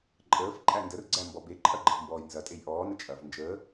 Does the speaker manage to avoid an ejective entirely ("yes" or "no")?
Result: no